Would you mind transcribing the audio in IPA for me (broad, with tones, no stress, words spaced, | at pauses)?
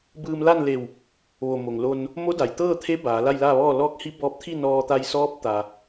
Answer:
bɯː˧mla˥˨n le˧˩w | ʋo˧˩mo˩ŋlo˧n | mo˧˥ da˩j t̪ɤː˥˨t̪ʰe˧˥ baː˩˧ la˥˨jlaː˥˨ʋɔː˥˨ lɔː˧˥k̚hi˧˥bɔː˧p̚t̪ʰi˥˨ nɔː˧t̪a˧jsɔː˧˥p̚ t̪a˩